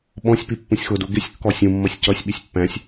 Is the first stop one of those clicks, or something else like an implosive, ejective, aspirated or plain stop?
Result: implosive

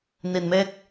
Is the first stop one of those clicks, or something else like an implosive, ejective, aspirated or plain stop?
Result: plain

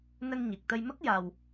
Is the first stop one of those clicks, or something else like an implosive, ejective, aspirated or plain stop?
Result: plain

